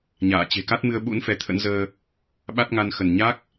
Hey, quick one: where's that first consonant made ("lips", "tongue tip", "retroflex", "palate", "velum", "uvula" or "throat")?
palate